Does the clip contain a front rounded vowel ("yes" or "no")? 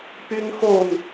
yes